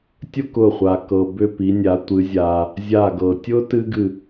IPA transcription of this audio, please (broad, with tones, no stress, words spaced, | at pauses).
tʲʊ˥˧kʊ˧˩χʷa˩ kɤ˩bʏ˧˩ pi˩˧nʲa˩˧ tʷɨ˩˧zʲa˩ | zʲa˧˩ɡɤ˩ tʲʊ˥ tɨ˥ɡɨ˧˩